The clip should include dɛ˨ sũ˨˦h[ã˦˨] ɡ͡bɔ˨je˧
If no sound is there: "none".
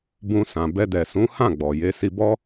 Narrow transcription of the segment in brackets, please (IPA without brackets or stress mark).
ã˦˨